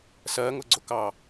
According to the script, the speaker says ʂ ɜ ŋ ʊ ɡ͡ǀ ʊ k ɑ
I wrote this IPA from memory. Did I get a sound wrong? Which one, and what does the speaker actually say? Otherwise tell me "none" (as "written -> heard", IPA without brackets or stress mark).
ʂ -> s